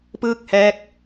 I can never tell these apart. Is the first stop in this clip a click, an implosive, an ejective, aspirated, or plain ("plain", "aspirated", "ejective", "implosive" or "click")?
plain